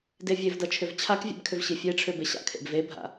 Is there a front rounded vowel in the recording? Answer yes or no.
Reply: yes